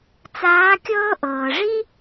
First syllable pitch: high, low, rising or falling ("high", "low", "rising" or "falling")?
rising